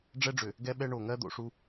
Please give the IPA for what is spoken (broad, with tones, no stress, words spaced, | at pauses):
ɖ͡ʐɛ˦ɖ͡ʐʏ˨ | ɡɛ˦ɓɛ˦ ɳo˨ŋɜ˦ d̪o̰˨ʂu˦